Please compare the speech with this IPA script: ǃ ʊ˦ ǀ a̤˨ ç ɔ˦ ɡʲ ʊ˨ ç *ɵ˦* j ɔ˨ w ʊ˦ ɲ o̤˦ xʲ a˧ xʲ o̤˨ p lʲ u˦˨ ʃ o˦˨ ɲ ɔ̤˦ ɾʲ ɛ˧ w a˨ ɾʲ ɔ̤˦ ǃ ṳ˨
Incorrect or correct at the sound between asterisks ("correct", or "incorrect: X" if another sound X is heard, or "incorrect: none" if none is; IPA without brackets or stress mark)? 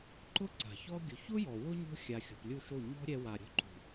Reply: incorrect: ʊ˦